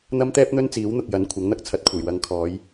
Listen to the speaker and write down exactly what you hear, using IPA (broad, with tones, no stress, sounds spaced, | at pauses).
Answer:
n̪ ɐ˥ m t̪ ɛː˥ p̚ n̪ ɵ˥ n t͡s iː˨˥ w n̪ ʊ˨ k̚ j ɐ˨˥ n kʷʰ ɐ˨˥ ŋ n̪ ɐ˥ k̚ t͡sʰ ɐ˨˥ t̚ kʷʰ e˨˩ j w ɐ˨˧ ŋ kʰ ɔː˨˧ j